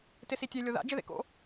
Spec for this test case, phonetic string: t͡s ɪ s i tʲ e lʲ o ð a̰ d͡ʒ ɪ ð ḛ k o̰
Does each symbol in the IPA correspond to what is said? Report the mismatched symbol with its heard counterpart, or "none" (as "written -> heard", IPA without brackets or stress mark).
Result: t͡s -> t